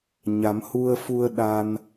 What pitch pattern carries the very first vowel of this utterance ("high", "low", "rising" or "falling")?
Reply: rising